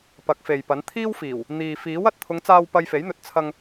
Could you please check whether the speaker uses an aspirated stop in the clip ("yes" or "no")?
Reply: yes